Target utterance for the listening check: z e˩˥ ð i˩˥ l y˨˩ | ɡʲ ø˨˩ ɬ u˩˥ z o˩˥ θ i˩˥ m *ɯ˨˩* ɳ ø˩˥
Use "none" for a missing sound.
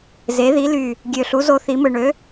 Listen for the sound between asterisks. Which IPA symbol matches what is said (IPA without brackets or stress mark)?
ɯ˨˩